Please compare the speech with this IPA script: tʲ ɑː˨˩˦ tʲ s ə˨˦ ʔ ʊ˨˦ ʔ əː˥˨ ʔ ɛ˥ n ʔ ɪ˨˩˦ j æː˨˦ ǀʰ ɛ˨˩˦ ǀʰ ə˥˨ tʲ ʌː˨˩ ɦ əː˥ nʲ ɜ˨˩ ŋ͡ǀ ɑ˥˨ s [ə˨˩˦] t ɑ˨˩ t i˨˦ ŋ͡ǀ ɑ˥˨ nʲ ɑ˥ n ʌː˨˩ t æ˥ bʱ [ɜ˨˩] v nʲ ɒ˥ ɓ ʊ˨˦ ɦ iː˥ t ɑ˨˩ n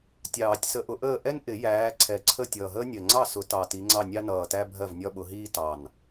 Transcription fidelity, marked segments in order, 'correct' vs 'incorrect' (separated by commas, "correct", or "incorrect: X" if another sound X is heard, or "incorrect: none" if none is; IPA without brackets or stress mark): incorrect: ʊ˨˩˦, incorrect: ɜ˥˨